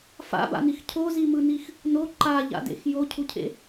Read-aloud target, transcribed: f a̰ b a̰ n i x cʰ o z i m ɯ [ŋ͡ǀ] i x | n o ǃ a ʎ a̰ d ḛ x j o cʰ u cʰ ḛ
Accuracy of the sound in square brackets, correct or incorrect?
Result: incorrect